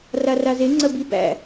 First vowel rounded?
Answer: no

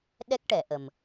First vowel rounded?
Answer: no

